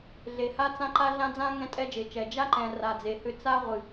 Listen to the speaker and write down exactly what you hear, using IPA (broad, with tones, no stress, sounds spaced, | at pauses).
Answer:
ɮ e˨ h a˦ t͡s ã˦ ǃ a˦ ɮ ã˦ d͡z ã˦ ŋ ɛ̃˦ tʼ ɛ˦ d͡ʒ e˨ t͡ʃ ɛ˨ d͡ʒ a˦ ǃ ɛ̃˨ r a˨ d͡z e˨ h ʏ˦ t͡s a˦ ʁʷ ɨ˨